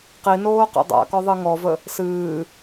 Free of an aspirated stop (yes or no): yes